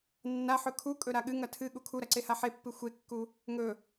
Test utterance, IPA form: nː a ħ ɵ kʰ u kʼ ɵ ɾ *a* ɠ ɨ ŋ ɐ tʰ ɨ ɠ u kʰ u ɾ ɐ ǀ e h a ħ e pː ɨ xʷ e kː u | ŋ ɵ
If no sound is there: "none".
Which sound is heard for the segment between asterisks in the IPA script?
a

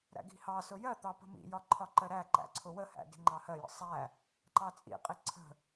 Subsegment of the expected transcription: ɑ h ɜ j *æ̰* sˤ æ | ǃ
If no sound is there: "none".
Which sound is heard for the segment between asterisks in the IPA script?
ə̰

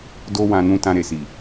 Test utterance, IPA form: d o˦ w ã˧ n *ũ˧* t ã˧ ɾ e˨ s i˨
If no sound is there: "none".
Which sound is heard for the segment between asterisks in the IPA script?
ũ˧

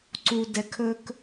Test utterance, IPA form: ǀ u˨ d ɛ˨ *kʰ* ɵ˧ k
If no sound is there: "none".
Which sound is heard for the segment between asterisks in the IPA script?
kʰ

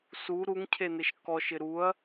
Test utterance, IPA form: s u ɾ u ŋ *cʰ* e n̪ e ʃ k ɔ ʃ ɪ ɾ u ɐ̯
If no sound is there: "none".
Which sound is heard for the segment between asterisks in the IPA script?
cʰ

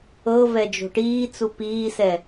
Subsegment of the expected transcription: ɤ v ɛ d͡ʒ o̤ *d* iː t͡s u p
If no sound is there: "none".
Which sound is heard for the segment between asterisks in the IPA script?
ʈ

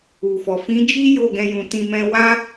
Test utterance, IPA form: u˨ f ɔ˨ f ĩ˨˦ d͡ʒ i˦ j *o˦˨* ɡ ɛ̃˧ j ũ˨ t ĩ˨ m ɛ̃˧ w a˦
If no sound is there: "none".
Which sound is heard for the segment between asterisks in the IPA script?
o˦˨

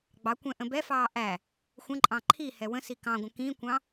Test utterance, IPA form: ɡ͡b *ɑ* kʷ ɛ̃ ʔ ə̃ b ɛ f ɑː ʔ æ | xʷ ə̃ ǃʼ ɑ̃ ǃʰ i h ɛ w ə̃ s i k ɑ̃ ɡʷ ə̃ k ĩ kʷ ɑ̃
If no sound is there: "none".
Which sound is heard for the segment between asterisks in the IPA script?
ɑ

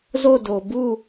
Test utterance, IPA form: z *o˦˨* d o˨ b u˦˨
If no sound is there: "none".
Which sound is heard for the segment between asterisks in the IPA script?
o˦˨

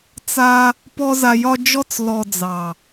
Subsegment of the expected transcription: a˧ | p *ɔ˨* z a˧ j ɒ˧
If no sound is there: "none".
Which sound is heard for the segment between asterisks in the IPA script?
ɔ˦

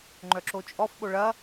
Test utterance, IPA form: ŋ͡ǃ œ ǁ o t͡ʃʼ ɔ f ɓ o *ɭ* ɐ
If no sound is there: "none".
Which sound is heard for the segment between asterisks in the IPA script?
ɭ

